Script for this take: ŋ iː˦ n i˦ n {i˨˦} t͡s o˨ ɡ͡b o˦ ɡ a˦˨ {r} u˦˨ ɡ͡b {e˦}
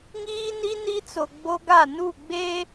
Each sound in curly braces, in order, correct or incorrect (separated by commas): incorrect, incorrect, correct